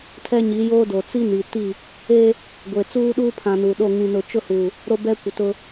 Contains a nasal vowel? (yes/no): yes